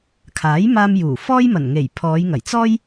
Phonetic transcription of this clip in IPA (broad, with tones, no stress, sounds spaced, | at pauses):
kʰ aː˨˥ j m aː˧ m j uː˨˩ f ɔː˥ j m ɐ˨˩ n ŋ e˨˩ j pʰ ɔː˨˧ j ŋ ɐ˨˩ j t͡s ɔː˥ j